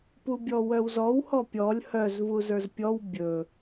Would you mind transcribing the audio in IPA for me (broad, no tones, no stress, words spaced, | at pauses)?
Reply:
pubʲɔwœwzɔw hɔpʲɔlʲ hœz vuzə˞zpʲɔw bʲɵ